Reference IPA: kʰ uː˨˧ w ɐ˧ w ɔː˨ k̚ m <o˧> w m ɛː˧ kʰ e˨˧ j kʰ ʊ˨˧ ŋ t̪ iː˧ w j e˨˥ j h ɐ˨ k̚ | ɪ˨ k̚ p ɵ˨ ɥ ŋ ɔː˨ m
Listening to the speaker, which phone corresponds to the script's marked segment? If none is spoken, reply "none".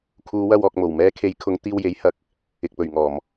o˨˩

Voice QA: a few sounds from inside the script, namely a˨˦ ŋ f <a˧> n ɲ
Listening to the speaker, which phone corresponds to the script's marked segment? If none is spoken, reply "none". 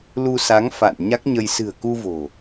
a̰˧˨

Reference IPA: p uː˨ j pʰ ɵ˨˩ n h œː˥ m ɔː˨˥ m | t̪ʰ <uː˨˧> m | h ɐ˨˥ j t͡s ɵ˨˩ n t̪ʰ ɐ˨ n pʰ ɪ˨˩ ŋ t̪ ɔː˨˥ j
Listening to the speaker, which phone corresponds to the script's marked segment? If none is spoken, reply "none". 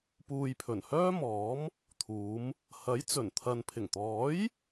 uː˨˧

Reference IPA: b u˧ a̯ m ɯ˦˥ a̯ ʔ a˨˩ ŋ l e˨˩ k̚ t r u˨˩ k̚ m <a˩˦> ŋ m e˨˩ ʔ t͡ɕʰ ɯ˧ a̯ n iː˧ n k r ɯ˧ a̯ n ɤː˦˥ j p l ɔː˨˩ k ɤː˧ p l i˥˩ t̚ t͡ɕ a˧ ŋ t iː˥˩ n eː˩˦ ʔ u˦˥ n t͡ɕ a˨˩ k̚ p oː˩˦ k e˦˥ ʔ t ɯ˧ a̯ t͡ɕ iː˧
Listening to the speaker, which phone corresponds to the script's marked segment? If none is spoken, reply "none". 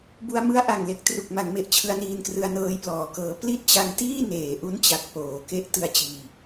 a˩˦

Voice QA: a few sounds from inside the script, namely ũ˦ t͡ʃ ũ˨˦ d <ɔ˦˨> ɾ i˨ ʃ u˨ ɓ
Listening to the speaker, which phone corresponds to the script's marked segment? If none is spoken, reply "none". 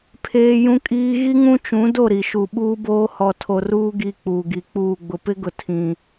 o˦˨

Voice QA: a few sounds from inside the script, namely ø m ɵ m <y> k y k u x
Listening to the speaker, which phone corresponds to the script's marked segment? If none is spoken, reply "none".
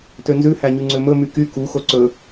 y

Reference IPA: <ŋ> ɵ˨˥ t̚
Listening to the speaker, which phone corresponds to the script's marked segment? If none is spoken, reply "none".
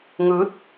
ŋ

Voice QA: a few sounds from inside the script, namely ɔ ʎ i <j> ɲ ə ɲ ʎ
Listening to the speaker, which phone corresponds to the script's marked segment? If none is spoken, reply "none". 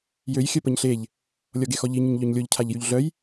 none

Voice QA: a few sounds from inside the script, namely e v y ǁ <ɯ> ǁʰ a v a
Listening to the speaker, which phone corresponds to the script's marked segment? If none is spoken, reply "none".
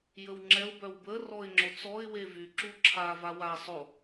u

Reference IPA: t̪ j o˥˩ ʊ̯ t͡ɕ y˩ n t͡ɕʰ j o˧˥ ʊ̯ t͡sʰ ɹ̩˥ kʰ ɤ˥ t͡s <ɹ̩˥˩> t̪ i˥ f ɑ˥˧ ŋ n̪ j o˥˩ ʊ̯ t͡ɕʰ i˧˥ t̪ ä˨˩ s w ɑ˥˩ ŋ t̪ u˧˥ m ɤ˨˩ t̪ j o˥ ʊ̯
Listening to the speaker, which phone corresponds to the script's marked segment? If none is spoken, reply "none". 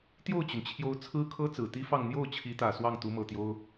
ɹ̩˨˩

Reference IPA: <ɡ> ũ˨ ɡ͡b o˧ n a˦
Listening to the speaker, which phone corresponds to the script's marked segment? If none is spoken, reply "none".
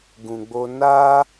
ɡ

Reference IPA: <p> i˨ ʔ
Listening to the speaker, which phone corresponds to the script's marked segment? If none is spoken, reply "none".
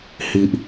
h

